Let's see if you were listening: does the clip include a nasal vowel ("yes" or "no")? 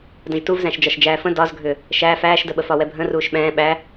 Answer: yes